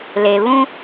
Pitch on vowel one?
low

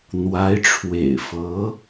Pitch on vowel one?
rising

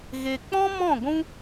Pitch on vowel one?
low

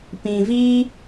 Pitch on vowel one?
low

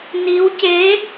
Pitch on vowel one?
rising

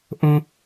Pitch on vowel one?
high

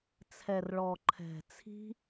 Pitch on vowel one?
low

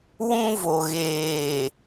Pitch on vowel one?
high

